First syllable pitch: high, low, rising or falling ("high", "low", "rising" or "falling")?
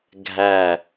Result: low